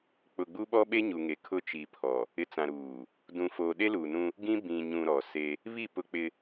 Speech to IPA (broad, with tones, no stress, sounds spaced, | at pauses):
k͡p ʊ˨ ɡ͡b u˦ ɓ ɔ˦ ɓ e˦ ɲ u˨ ŋ e˨ kʰ ʊ˦ t͡ʃ i˨ pʰ ɔ˨ | ɪ˨ t͡s ã˨ ɾ uː˨ | d ũ˨ f oː˨ ɗ e˦ l uː˨ n ũ˦ | ɡ ĩ˦ b ĩ˨ ɲ ũ˨ ɾ ɔ˨ s e˦ | β i˦˨ p ʊ˦ k͡p ɪ˦